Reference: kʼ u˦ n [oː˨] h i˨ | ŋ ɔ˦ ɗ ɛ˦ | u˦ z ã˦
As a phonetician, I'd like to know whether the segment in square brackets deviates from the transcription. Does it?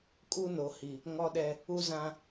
yes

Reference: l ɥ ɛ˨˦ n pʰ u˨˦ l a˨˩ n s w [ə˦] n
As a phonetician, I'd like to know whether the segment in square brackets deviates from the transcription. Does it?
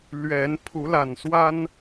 yes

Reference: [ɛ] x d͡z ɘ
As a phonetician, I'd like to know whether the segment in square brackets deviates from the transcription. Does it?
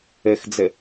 yes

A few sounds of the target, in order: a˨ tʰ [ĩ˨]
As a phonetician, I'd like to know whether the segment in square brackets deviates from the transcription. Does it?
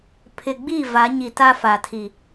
yes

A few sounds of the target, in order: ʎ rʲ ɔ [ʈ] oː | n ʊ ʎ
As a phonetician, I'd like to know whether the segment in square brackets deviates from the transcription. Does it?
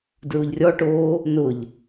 no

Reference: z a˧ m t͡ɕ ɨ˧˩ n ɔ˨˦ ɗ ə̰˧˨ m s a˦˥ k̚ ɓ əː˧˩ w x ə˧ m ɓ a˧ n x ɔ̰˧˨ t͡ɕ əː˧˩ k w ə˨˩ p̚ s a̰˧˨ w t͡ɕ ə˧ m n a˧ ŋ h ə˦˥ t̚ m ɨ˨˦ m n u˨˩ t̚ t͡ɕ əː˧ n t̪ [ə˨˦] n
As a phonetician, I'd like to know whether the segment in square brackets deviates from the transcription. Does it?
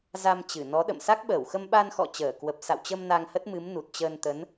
no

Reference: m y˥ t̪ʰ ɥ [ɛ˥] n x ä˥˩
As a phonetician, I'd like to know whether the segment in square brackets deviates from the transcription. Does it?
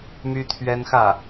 no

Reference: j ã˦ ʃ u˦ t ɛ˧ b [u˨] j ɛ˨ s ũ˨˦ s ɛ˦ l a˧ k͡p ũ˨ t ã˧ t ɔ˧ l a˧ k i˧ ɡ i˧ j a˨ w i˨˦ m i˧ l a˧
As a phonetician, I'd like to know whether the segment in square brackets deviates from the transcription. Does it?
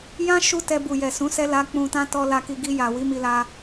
no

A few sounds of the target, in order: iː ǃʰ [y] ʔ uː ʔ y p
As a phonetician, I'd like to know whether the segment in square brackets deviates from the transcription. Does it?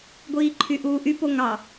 no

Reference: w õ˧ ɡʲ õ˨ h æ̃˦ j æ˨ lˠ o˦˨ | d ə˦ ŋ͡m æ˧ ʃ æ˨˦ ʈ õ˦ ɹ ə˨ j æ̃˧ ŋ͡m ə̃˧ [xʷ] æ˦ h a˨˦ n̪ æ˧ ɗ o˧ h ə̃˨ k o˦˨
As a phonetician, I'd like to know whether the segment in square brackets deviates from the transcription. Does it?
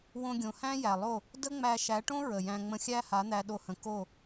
yes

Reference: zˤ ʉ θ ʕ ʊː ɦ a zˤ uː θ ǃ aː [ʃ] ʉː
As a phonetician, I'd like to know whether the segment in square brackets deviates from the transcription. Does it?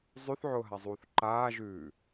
yes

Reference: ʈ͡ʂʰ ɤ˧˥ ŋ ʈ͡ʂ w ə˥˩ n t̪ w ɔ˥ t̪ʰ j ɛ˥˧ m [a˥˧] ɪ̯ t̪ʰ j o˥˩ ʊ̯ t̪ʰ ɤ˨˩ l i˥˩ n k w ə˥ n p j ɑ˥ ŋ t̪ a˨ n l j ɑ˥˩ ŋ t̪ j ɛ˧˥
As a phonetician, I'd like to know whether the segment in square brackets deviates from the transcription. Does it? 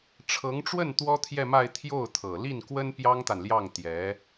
no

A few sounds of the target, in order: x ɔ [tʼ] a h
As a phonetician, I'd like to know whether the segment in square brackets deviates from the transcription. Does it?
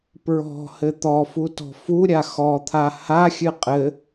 yes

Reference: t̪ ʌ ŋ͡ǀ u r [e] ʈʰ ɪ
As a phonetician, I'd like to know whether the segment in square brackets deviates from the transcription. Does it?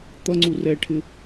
yes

